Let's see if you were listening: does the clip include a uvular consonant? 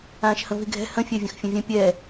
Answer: no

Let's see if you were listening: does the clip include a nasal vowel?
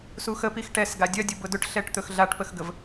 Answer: no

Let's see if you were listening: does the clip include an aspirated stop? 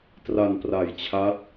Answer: yes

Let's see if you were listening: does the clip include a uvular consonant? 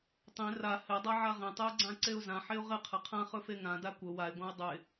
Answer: yes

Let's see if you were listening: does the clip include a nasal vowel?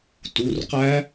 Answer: no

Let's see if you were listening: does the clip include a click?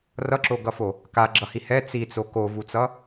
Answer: yes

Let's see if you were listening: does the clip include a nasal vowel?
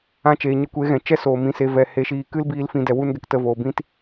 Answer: yes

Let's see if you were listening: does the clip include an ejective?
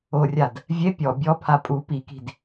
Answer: yes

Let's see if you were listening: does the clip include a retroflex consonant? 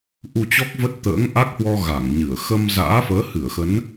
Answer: no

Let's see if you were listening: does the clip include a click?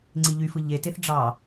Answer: yes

